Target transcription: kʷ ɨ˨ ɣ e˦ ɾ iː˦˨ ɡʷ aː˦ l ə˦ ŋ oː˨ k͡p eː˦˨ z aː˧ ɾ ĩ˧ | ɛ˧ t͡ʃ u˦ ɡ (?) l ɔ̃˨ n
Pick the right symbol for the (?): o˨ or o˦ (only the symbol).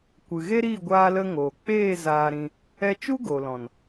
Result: o˨